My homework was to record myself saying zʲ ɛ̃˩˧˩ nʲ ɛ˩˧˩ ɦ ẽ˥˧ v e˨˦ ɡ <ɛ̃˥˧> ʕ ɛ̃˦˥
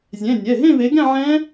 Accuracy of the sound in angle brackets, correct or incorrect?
correct